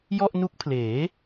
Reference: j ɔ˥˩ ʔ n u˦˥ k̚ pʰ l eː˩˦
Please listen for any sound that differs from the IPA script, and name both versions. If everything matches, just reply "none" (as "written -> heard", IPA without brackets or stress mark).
none